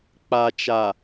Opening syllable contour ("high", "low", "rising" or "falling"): low